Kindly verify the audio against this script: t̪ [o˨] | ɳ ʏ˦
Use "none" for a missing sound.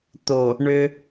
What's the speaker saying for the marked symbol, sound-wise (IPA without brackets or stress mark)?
o˨